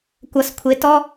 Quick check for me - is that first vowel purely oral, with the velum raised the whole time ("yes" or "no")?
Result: yes